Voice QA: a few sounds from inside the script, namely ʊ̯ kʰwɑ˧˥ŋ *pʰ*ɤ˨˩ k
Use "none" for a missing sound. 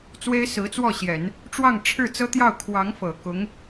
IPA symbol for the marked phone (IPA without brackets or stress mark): f